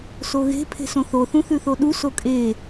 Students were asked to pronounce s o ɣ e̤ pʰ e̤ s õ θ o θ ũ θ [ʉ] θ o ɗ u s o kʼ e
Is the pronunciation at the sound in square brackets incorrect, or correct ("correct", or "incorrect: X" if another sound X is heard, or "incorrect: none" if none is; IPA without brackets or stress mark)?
correct